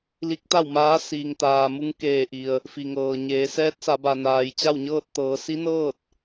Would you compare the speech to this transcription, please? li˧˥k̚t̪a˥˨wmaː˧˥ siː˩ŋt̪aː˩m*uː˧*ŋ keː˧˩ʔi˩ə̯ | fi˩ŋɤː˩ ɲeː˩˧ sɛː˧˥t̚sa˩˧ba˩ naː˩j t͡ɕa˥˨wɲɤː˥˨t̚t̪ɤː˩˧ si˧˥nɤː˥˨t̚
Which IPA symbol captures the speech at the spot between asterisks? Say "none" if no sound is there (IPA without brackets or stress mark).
u˧